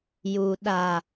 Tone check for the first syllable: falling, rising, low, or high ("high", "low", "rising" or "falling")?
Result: low